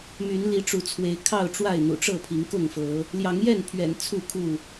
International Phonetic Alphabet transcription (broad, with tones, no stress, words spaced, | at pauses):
my˨˦nli˨˦ʈ͡ʂu˨˦t͡sʰwe˨˦ɪ̯ kʰɑ˥˨ʊ̯ʈ͡ʂwa˥˨ɪ̯n̪ṵ˨˩ʈ͡ʂɤ˥˨ pʰi˨˦ŋkʊ˥˨ŋfɤ˨˦ | ljɑ˨˦ŋjɛ˥˨npʰɥɛ̰˨˩n t͡sʰu˥˨kʰu˥˨